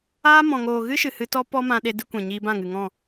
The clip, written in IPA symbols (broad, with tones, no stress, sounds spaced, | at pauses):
aː˦ m ɔ̃˨ ŋ oː˨ ɣ ɨ˦ ʃ ɨ˨ h ɨ˧ t ɔ˦ p ɔ˦ m ã˧ ɗ e˧ d ɨ˧ kʷ ɛ̃˨ ɲ iː˧ b ã˦˨ ŋ ɨ˨ ŋ ɔ̃˦˨